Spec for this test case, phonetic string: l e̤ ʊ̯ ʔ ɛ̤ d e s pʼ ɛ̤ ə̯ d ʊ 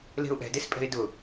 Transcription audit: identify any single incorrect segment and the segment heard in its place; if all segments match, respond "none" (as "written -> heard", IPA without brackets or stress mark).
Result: ə̯ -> ɪ̯